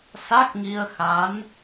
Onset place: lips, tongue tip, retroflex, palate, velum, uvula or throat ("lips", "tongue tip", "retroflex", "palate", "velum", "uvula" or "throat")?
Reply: tongue tip